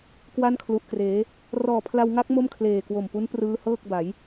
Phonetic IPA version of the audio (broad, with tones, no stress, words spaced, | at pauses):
kwa˥˩nkʰlu˨˩ʔkreː˩˦ | rɔː˨˩pʰla˧wŋa˦˥k̚ mo˥˩mkʰleː˨˩kwo˨˩mpu˦˥n prɯː˦˥hɤː˥˩k̚ba˩˦j